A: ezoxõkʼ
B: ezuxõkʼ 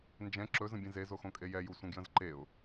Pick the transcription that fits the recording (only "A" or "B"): A